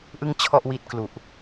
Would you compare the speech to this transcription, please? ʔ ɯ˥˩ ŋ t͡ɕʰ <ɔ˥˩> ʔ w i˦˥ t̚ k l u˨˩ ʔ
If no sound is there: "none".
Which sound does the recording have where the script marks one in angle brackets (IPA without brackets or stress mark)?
ɔ˥˩